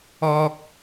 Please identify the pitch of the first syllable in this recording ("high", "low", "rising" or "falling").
low